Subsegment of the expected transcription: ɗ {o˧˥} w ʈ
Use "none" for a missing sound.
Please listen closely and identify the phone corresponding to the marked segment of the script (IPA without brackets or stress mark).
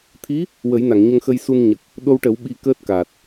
o˧